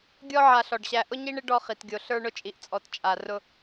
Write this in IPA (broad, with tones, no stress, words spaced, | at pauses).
ɡʲɔ˦ ʕa˨ɬɔ˩ɖɕæ˨ ʔʊ˥ɲi˥ɳɪ˥ ɖɔ˦χi˩tɡʲo˨ ɬə˞˦ɳʊ˦t͡ʃʼi˨ʔt͡sʼɔ˨t t͡ʃʼa˨ rʊ˦